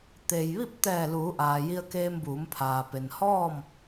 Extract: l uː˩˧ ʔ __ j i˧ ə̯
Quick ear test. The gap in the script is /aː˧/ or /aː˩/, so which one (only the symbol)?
aː˩